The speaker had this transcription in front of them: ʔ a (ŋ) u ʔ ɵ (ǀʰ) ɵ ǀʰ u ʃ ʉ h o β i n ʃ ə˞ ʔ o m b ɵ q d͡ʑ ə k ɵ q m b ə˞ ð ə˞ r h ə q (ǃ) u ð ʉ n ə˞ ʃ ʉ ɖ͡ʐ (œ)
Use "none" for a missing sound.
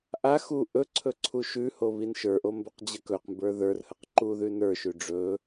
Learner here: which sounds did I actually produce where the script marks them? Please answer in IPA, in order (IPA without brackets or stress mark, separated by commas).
x, ǀʰ, ǃ, ɵ